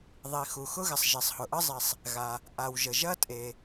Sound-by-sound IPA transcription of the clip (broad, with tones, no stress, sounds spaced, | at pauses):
ðˤ i˩ x u˩ x ʊ˥ ɣ ɪ˩ sˤ ʒ i˩ sˤ h ʊ˩ ʔ ə˥ zˤ i˩ sˤ | ɣ a˩ | ʔ a˩ w ʒ ə˩ ʒ ɐ˥ tʼ e˩